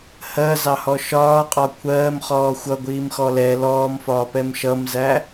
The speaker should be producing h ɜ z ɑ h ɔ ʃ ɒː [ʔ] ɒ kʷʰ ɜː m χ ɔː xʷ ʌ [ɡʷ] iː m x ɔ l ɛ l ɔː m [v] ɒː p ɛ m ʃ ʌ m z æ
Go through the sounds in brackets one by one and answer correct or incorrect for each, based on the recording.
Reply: incorrect: qʼ, correct, incorrect: f

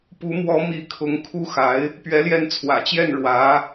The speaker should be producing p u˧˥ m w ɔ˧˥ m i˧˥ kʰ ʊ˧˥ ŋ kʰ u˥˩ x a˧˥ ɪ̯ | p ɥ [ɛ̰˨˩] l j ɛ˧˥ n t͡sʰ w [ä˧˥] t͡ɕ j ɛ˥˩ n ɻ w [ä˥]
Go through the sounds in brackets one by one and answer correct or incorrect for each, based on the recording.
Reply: incorrect: ɛ˧˥, incorrect: ä̰˨˩, incorrect: ä˧˥

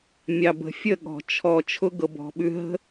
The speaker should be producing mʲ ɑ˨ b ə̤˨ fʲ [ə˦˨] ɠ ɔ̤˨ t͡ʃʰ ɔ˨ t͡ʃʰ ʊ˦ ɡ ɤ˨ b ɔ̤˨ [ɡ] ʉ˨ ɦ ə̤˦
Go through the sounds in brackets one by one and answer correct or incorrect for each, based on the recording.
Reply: correct, incorrect: ɓ

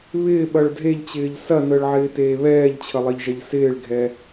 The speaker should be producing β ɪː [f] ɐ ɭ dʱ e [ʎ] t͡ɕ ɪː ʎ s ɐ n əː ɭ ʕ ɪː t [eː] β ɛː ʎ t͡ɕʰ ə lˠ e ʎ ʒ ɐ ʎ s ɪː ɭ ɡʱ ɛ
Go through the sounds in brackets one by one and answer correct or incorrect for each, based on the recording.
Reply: incorrect: ɓ, correct, correct

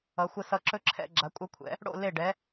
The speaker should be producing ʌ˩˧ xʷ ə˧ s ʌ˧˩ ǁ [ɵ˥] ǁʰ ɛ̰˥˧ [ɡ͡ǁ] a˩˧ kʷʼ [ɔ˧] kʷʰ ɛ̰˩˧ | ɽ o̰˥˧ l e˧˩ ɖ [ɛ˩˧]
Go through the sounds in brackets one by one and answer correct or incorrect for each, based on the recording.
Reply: correct, correct, incorrect: ʌ˧, correct

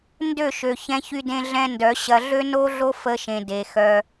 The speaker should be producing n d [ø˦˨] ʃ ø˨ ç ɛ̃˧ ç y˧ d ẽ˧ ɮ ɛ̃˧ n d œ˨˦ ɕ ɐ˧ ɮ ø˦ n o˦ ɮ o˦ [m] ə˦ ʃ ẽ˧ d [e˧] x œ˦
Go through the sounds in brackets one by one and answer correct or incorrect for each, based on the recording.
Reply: correct, incorrect: f, correct

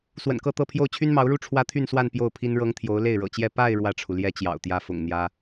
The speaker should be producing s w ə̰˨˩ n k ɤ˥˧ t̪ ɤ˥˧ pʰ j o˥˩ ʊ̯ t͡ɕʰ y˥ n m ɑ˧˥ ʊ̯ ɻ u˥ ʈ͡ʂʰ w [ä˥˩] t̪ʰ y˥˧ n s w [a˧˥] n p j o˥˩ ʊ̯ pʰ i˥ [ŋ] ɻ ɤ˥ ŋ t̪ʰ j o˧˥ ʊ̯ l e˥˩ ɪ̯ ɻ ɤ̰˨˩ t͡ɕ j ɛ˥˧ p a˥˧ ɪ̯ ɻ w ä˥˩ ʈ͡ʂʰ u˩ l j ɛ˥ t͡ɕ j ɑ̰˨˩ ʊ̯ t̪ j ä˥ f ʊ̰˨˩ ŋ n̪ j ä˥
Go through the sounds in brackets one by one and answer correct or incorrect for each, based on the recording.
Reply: incorrect: ä˥, incorrect: a˥˧, incorrect: n

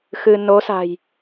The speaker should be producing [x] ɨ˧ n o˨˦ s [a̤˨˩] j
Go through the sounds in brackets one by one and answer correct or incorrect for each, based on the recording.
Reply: correct, correct

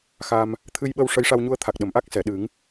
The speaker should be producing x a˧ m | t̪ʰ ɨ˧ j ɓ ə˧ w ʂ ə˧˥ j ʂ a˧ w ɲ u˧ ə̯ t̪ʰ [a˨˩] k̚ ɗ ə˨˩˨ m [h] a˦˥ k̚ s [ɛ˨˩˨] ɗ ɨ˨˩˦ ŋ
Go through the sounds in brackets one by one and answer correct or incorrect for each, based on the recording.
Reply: correct, incorrect: ʔ, correct

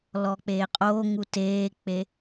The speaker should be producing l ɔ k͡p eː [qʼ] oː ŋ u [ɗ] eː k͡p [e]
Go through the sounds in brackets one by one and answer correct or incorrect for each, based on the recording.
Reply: correct, incorrect: t, correct

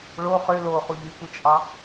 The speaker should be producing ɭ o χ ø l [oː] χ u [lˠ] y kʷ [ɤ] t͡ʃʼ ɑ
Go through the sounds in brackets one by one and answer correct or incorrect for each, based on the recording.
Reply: correct, incorrect: ʎ, incorrect: ɯ

